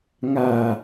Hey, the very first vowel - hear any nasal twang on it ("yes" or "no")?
no